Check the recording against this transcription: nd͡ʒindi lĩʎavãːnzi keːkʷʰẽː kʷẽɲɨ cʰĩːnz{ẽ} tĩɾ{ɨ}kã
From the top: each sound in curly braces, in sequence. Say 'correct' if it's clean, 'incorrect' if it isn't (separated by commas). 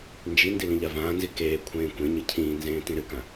incorrect, correct